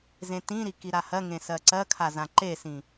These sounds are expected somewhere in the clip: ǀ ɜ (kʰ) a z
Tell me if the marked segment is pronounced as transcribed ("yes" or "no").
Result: yes